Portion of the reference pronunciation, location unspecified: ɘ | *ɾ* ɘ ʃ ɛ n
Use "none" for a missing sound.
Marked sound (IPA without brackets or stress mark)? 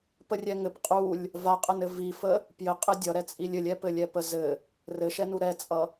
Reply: r